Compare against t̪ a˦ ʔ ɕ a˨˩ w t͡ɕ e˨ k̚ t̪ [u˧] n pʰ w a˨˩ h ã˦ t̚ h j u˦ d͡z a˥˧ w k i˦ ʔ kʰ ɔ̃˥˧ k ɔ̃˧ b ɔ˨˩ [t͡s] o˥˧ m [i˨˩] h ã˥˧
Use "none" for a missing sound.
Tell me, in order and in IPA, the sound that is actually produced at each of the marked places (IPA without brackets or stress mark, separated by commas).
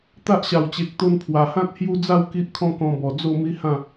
o˧, d͡z, i˦